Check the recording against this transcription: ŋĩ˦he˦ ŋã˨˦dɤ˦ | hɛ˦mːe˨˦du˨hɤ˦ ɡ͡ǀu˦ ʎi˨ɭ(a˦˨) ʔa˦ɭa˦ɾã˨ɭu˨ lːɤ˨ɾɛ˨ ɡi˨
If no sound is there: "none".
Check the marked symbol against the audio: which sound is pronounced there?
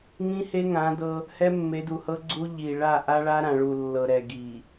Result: a˦˨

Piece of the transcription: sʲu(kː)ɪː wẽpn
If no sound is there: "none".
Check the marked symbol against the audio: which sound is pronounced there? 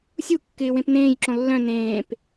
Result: kː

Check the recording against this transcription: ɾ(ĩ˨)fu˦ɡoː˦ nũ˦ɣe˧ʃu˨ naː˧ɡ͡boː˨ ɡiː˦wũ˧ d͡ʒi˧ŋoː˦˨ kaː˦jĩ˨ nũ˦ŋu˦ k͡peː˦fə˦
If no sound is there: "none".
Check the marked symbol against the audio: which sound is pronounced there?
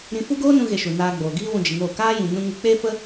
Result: ĩ˧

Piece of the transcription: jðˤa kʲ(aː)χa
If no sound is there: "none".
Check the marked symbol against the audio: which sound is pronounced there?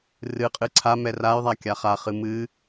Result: a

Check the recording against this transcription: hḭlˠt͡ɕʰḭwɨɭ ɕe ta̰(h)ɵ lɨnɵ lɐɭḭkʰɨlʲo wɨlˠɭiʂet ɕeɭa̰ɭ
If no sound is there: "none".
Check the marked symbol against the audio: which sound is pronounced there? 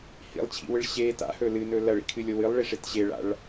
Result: h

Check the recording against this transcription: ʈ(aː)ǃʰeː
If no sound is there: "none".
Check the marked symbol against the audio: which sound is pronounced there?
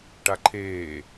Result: a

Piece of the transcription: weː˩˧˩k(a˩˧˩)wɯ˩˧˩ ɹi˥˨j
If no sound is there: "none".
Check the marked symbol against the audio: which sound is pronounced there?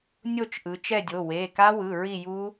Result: a˦˥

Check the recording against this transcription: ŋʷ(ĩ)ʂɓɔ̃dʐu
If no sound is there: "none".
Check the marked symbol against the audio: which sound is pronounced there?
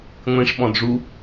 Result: ĩ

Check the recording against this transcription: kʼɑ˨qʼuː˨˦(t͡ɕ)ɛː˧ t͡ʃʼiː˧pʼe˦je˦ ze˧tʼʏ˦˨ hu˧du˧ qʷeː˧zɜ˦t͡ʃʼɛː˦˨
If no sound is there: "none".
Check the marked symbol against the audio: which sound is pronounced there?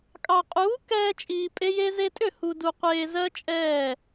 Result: k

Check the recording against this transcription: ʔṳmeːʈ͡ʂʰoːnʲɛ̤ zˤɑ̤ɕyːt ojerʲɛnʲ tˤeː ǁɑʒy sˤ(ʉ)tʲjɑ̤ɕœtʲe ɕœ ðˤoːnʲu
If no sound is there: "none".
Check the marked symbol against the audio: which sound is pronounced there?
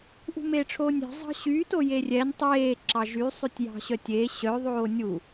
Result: ʉ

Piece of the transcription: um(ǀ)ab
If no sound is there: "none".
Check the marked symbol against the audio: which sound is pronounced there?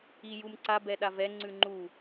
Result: ǀ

